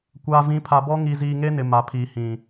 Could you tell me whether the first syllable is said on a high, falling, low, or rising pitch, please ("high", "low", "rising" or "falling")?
low